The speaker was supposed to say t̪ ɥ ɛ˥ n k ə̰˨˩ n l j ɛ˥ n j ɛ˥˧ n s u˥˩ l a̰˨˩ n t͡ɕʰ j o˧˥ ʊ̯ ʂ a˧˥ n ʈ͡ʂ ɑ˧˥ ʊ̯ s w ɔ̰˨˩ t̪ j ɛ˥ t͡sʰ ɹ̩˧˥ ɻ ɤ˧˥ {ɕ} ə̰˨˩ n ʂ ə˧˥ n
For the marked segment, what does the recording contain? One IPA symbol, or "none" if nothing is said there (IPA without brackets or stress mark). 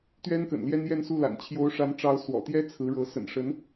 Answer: s